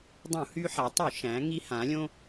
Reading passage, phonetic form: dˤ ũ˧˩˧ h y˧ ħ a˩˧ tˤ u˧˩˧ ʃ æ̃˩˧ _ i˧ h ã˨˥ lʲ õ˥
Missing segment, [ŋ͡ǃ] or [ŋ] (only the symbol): ŋ